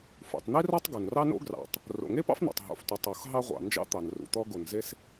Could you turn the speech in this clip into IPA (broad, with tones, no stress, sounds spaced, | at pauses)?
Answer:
f ṵ˩ tˤ n̪ i˥ r ɒ˥ tˤ ɡ o˩ n r ɑ˥ n o̰˥ ɡ r ɑ̰˩ tˤ | r o̰˩ ŋ e˥ p ɑ̰˥ f n̪ o̰˩ tˤ ɦ o̰˩ f tʷ i˩ tˤ o˩ x ɦ ɑ˥ ʁʷ ɑ̰˩ n d͡ʒ ɑ̰˥ t̪ ɑ˩ n r ṵ˩ t̪ ɔ˥ ɡ o˩ n z e˥ s